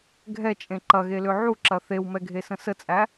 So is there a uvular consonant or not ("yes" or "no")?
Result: no